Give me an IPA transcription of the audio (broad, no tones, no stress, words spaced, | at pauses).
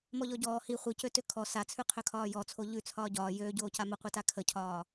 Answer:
mɔʎɔɟɔː hi χʷicøtø kʰɔ sat͡sʰʉ qʰøkʰɒːjɔt͡sʰo ʎʉ t͡sʰɒːɟɒː jøːɟoːca məqʷita kʰəcʰɒː